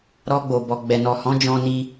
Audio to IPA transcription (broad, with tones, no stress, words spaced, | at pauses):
ɾɔ˧ɡ͡bo˨ bɔ˨ɡ͡bɛ˨nɔ˨hɔ̃˨˦ d͡ʒɔ̃˧ni˧